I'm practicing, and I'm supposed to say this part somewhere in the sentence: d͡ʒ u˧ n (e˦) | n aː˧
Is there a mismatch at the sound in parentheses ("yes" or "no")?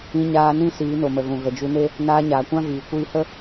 no